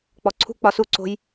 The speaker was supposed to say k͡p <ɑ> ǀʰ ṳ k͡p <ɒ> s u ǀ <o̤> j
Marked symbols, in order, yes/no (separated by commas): no, yes, yes